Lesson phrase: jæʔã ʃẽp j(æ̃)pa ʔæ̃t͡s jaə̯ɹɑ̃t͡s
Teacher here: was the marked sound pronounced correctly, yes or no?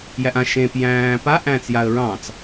no